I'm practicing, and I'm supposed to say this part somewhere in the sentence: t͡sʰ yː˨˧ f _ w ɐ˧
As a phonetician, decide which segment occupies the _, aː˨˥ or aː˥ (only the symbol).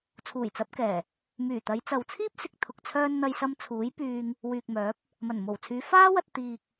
aː˥